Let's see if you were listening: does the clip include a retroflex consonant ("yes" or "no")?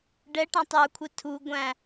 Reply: yes